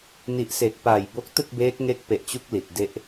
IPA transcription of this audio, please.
n i˨˩ ʔ s e˨˩ k̚ p aː˨˩ j b o˦˥ k̚ t ɯ˥˩ k̚ b eː˦˥ k̚ ŋ e˦˥ k̚ p e˨˩ ʔ t͡ɕ u˦˥ k̚ l i˨˩ t̚ d e˥˩ ʔ

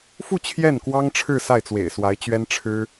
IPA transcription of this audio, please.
f u˥˧ t͡ɕʰ j ɛ˥˩ n k w ɑ˥ ŋ ʈ͡ʂʰ ɻ̩˥˧ s a˥˩ ɪ̯ t͡s w ḛ˨˩ ɪ̯ s w a˧˥ ɪ̯ t͡ɕ ɥ ɛ˥ n ʈ͡ʂʰ ɻ̩˥

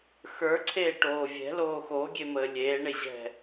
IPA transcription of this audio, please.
x ə˞ ǀʰ eː ʈ oː vʲ ɛ̤ l oː x o ɡʲ e m əː lʲ eː ɳ e ʑ ɛ̤

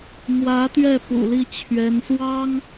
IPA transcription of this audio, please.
m w ä˧˥ t̪ ɥ ɛ˥˩ p ṵ˨˩ l i˥˩ t͡ɕʰ ɥ ɛ˧˥ n s w ɑ˥ ŋ

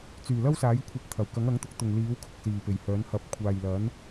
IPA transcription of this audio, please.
t͡s yː˨˩ l ɐ˥ w s aː˨˥ j kʷʰ ɐ˧ p̚ t̪ʰ ɐ˨˩ w k ɐ˨˥ ŋ ɐ˨˥ ŋ t̪ ʊ˨˥ k̚ t̪ ʊ˨ ŋ l iː˨˥ w kʰ ʊ˨ k̚ s iː˨˩ p e˨˩ j h œː˨˥ n h ɐ˧ p̚ kʷʰ aː˨ j l ɐ˨˥ n

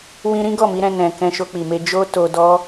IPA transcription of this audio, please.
w ĩ˧ ɾ ĩ˦ ɡ ɔ˦˨ m i˨˦ ɾ ɛ̃˧ n ɛ̃˨ k ɛ̃˧ ʃ o˧ k͡p i˨ m e˧ d͡ʒ o˦ t o˧ d ɔ˦

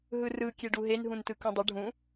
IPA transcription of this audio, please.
ɦ ɯ r ɯ kʲ e ɖ u ɦ e n ɦ ũ n t ɯ k ũ dˤ ə ɖʱ ũ

